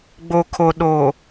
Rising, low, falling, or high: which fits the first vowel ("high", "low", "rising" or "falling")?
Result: low